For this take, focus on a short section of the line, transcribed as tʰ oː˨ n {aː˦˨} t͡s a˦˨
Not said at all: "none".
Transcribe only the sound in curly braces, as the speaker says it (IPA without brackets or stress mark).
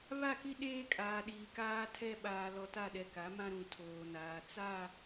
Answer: aː˨